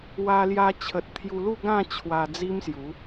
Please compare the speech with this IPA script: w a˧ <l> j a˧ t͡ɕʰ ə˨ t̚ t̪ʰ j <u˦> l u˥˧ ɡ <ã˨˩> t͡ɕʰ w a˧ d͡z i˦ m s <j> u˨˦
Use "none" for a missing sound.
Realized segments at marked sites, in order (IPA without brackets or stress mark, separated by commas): l, u˧, ã˥˧, j